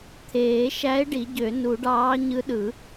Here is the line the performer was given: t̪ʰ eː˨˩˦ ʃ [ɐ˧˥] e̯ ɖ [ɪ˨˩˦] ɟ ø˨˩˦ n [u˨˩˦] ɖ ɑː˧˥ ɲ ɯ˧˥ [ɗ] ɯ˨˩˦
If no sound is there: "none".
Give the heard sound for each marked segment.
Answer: æ˧˥, i˨˩˦, u˨˩˦, ɗ

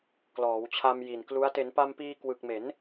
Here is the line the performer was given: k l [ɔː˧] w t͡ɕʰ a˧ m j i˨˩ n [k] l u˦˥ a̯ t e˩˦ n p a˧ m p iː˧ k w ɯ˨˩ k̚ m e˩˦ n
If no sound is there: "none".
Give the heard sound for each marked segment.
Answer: ɔː˩˦, k

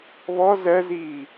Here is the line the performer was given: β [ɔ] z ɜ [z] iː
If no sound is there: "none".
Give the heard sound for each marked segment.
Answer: ɔ, z

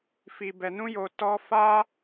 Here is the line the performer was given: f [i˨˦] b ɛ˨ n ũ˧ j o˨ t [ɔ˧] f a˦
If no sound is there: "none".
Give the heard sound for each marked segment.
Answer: i˨, ɔ˧

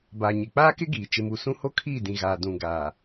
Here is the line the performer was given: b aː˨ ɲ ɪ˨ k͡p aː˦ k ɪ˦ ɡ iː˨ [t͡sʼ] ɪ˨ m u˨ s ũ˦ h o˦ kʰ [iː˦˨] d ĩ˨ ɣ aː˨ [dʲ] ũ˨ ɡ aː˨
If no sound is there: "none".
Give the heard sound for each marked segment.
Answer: t͡ʃ, iː˦˨, d

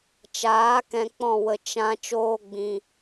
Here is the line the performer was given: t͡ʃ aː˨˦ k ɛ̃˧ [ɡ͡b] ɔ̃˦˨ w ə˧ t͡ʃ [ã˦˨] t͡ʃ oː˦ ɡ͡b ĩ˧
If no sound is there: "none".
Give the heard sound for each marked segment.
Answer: k͡p, ã˦

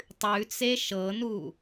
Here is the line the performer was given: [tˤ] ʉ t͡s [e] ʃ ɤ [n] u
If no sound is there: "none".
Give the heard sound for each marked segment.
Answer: tˤ, e, n

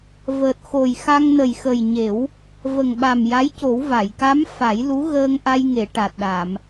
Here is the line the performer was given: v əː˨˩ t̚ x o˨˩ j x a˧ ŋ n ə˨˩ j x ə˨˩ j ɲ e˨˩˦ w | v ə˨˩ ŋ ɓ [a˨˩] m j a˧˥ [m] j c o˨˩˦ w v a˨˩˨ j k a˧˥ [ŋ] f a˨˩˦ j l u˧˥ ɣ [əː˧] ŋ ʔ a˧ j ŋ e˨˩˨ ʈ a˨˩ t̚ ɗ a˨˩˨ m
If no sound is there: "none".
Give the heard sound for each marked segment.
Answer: a˨˩, none, m, əː˧

